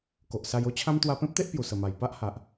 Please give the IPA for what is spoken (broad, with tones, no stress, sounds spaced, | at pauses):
k o˨ ʔ s a˧ j o˦ t͡ɕʰ ã˦ m t̪ w a˧ p ẽ˦ p̚ t̪ e˦ ʔ p j u˨˩ s ə˨˩ m a˨˩ j p a˦ ʔ h a˨ ʔ